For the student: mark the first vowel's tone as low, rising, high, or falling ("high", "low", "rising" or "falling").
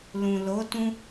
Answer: low